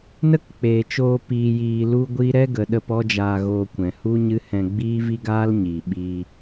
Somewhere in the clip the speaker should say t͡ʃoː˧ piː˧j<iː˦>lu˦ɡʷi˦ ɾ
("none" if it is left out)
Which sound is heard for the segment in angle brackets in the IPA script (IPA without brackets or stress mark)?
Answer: iː˧